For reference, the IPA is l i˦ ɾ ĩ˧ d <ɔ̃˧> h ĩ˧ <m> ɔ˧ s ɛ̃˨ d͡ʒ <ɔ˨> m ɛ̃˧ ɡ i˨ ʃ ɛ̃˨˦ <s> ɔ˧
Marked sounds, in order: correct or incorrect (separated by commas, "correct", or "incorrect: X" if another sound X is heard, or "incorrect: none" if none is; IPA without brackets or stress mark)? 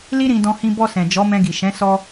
correct, incorrect: b, incorrect: ɔ˨˦, correct